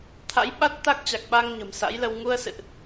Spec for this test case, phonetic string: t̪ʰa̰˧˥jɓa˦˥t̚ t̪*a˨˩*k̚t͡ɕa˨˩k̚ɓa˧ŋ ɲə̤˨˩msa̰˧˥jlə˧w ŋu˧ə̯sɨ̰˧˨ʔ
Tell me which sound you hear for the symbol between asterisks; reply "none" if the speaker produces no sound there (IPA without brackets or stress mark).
a˦˥